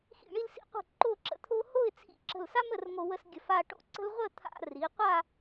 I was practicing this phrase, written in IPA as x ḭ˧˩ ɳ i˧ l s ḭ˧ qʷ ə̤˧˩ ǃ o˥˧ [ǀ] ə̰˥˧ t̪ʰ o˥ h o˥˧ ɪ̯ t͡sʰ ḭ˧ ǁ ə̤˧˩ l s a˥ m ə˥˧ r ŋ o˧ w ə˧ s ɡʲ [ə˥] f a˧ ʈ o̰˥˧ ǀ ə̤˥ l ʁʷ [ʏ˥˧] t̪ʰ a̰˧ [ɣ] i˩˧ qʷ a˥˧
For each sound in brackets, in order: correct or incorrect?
incorrect: ǁ, incorrect: ə˧˩, incorrect: ə˥˧, incorrect: r

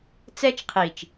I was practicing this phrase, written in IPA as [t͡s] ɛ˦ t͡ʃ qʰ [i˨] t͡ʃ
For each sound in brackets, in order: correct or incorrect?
correct, correct

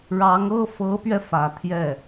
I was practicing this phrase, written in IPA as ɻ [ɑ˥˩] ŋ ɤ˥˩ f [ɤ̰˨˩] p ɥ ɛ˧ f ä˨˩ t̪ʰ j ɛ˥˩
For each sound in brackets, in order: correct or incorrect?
incorrect: ɑ˧˥, incorrect: ɤ˧˥

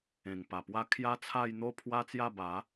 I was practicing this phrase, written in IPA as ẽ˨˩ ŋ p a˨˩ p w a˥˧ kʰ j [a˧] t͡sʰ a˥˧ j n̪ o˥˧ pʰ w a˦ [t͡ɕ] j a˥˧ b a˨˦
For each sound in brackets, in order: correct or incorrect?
incorrect: a˦, incorrect: t͡s

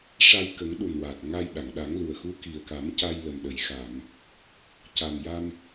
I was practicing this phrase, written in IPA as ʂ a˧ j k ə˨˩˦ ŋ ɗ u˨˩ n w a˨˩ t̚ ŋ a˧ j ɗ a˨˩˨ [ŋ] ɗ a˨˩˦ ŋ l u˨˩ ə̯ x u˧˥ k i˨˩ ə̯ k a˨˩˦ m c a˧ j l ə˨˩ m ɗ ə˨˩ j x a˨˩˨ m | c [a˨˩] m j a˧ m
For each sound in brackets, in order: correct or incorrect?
correct, correct

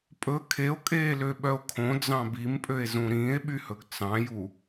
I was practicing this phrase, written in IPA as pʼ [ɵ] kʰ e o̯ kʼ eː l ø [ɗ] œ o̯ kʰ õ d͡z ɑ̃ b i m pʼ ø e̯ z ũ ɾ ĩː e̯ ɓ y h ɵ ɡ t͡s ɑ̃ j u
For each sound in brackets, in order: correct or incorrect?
correct, incorrect: ɓ

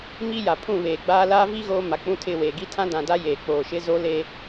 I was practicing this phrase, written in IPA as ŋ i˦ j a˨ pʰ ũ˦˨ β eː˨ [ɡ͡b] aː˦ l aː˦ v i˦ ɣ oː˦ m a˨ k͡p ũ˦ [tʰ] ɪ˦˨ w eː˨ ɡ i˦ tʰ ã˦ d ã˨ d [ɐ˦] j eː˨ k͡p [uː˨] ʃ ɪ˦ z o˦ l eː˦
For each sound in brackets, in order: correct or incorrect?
correct, correct, incorrect: a˦, incorrect: oː˨

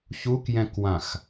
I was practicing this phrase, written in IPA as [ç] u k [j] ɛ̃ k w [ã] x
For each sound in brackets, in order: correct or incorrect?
correct, correct, correct

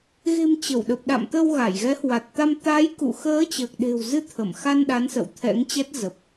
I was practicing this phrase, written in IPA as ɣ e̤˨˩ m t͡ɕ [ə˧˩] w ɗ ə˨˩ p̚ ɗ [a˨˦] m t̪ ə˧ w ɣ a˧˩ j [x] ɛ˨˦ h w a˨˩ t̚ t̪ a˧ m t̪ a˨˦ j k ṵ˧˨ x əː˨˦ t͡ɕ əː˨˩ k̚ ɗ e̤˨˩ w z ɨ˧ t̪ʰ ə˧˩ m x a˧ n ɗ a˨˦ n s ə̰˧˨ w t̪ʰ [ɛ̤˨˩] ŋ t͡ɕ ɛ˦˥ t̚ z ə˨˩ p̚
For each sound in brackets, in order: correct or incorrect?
correct, incorrect: a̰˧˨, incorrect: ɣ, incorrect: ɛ̰˧˥

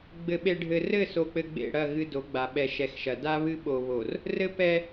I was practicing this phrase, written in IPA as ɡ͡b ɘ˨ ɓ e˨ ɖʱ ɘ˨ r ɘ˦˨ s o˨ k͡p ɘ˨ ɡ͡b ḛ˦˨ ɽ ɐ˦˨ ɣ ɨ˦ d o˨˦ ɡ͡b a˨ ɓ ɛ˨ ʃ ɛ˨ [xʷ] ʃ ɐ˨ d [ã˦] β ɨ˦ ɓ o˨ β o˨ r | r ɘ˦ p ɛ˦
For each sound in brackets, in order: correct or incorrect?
incorrect: x, incorrect: a˦

